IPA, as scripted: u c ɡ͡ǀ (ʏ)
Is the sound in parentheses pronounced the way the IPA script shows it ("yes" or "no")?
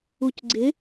no